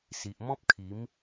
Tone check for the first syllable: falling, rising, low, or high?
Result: low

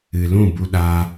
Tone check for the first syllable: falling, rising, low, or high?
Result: low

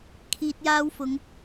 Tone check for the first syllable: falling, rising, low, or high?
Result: low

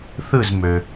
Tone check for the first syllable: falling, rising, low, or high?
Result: falling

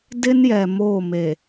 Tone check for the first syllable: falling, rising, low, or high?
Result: high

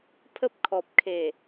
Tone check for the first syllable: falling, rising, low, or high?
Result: high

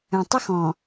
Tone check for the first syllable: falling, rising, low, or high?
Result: low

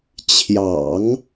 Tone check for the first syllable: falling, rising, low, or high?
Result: low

